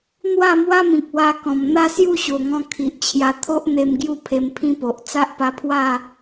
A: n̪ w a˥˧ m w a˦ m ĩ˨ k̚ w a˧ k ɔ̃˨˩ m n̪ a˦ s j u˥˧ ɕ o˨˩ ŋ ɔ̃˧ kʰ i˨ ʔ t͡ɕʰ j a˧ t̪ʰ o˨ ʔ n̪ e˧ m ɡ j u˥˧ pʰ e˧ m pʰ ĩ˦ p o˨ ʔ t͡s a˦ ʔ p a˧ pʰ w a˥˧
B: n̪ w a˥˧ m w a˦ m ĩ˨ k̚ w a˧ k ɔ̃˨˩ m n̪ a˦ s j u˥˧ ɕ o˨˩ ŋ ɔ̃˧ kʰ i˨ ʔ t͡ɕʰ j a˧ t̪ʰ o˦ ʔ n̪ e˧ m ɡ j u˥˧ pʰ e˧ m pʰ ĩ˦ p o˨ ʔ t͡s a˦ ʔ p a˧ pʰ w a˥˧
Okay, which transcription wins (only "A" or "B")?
B